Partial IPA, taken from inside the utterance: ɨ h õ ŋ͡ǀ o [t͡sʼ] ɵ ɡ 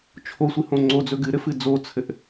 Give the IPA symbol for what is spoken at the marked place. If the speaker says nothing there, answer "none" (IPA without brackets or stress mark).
d͡z